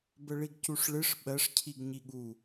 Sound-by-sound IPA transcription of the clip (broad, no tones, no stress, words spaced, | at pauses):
bəɭiɡcuʂɭɨʂ ɓɜʂcʰiɡ ɲiɠu